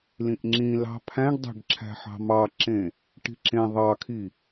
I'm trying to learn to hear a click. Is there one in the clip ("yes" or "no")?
yes